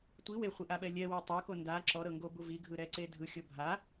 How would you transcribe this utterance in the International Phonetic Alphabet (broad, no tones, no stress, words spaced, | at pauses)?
tʷi weχʷiʔaɓɛ lʲɛwe tˤɤko nda ǁɔɾɤŋɡobu viɡʱɯɾɛǀe dʱɯxʲɤ bʱa